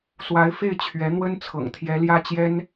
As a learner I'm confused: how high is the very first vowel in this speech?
low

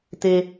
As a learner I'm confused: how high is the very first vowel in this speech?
mid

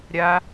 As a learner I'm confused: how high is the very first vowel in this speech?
low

